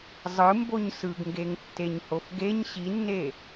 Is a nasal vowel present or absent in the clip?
absent